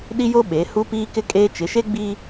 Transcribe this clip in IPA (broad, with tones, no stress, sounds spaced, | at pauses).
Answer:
ɗ i˦ j o˦ ɓ e˨˦ h u˦ p iː˦ k ɪ˦ kʼ eː˦ t͡ʃ ɪ˨˦ ʃ e˦ ɡ͡b i˦